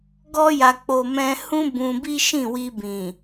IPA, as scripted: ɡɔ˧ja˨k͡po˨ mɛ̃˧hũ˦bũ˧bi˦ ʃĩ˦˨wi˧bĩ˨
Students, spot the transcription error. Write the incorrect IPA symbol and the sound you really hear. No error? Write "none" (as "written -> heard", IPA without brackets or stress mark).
none